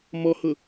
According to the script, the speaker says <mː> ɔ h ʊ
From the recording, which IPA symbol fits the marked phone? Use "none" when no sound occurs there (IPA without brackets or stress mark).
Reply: m